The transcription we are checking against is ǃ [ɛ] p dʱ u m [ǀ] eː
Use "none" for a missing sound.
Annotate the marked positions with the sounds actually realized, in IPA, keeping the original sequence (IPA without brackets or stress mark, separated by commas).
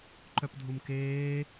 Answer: œ, k